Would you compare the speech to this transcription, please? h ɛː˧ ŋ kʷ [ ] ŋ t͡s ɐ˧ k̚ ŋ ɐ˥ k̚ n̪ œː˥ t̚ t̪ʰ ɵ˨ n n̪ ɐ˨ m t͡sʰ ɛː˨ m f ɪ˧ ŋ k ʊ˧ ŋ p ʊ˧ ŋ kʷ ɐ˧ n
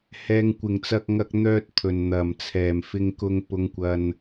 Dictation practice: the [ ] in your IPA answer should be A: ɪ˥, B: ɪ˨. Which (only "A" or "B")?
B